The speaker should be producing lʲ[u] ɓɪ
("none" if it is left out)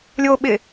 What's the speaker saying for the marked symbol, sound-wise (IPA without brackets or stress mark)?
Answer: o